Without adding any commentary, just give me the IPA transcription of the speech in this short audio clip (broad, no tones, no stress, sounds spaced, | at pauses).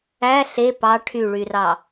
æ ɬ e p ɑ ʈʰ y ɭ y r ɑ